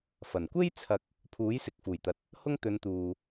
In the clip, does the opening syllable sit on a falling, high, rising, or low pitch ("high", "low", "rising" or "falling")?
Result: low